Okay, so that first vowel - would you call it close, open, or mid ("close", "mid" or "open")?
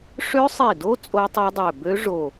mid